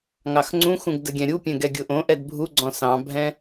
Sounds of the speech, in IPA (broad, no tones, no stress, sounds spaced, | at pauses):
ŋ ɑ x ŋ͡ǀ ũ x ũ ɡ d ə ɡʲ ɛ̃ ɾʲ u pʲ ɛ̃ ɡ ɛ ɡʲ ʊ ʔ õ ʔ ɛ d bʱ u ɡ͡ǀ ɔ̃ s ɑ̃ bʱ ɛ̃